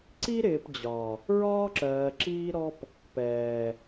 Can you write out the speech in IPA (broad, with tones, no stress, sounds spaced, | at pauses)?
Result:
ǀ i˦ ɾ ɪː˨ p d͡ʑ ɒ˨ | ɹ ɒː˦ ǁ ɜː˨ ǁ iː˦ ɾ ɔ˦ p | p ɛː˨